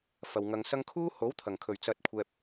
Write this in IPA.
f ɐ˨ w ŋ ɐ˧ ŋ s ɐ˥ ŋ kʰ uː˥ h o˨˥ w t̪ʰ ɐ˨˩ ŋ kʰ ɵ˨˩ ɥ t͡s ɐ˧ t̚ kʷʰ ɛː˧ p̚

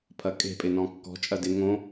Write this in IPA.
pʰ ɐ kʼ e̤ pʼ ɪ n ɔ̃ kː ɔ̤ t͡ʃʼ ɐ d ɪ ŋ õ

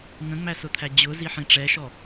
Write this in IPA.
ŋ ə̃ ŋ͡m æ s ʊ t̪ʰ æ d͡ʑ ʊ z i ħ ĩ ʈ͡ʂ ɛ ʃ ɔ

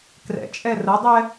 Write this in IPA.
k r ɛ̰ t͡ʃʼ ɛ r ə dˤ ɛ

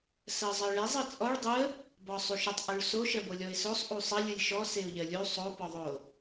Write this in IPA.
s ɜ zˤ ɜ ɭ e zˤ ɯ t͡sʼ ɔ ɭ dˤ ɯ ə̯ | b ɔ sˤ u ʃ ə tˤ ʔ u ɭ s o ʃ ɜ b o lʲ ɔ ɪ̯ s o sˤ ʔ u sˤ ə lʲ ɯ lʲ ʃ ɔ s e ʊ̯ ʎ ɜ lʲ u sˤ o p ɔ ðˤ o

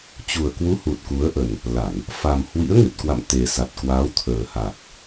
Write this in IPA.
t͡ɕ u˨˩ ə̯ k w u˨˦ h u˨˩ t̚ k u˨˦ ə̯ ʔ ə˨˩ n | l a˧˩˨ n | f a˨˩ m h w ḭ˧˥ ə̯ ŋ ɨ˨˩ t̚ k w a̰˧˨ m t̪ e˨˩ s a˨˩ t̚ k w aː˨˦ w t̪ʰ əː˨˩ h a˨˩ k̚

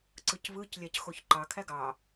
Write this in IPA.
ǀ ɯ c β ɯ c lʲ æ c x o ç ǃ ɑ kʰ æ ɡ ɑ

